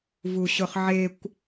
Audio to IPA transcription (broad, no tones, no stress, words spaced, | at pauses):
vuɕʊχʕekʷ